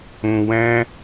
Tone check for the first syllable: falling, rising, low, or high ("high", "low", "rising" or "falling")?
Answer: low